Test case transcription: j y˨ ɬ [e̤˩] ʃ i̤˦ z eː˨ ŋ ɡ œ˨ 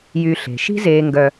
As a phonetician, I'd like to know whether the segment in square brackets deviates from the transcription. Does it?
no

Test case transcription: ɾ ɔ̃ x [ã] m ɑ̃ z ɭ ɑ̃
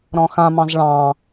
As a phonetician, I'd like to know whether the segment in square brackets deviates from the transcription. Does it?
no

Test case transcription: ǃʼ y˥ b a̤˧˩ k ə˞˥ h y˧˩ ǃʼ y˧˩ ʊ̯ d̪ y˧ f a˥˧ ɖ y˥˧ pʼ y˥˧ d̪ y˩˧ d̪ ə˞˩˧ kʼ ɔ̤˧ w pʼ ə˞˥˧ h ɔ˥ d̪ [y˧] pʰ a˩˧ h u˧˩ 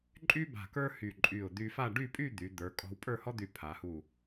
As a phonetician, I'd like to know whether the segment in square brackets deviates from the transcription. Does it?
yes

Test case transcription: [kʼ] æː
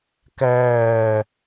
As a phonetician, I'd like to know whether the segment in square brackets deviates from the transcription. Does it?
yes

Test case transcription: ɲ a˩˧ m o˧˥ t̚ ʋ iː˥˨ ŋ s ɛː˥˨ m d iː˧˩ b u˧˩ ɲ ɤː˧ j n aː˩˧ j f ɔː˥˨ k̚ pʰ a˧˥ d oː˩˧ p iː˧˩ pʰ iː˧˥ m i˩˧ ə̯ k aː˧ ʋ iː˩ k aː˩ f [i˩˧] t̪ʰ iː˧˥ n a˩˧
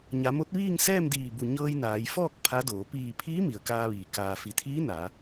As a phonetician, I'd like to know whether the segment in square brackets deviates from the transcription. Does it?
no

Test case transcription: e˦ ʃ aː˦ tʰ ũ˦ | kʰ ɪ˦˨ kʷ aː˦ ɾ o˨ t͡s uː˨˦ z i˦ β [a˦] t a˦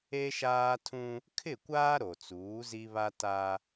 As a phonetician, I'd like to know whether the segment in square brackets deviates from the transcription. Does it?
no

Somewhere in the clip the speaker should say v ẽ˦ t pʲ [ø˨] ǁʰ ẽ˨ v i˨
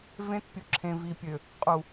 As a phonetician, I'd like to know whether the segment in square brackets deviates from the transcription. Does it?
yes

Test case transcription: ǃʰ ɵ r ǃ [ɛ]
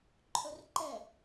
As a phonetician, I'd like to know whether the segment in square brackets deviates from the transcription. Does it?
no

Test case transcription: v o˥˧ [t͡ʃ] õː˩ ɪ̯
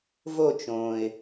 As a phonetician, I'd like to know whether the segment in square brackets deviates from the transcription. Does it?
no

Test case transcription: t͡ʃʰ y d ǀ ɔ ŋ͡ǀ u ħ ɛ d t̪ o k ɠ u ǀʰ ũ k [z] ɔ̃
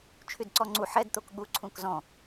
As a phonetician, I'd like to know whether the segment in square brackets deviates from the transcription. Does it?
no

